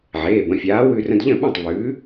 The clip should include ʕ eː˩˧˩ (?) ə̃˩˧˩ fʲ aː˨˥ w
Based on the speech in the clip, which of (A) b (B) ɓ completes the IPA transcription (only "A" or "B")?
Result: A